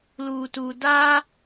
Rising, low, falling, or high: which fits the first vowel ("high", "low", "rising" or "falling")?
low